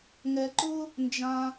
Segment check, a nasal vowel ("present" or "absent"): present